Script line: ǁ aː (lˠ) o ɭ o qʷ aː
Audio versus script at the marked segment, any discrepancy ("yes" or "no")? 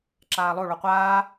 no